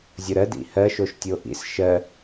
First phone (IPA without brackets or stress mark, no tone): zʲ